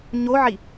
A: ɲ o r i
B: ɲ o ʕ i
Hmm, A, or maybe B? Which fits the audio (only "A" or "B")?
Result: B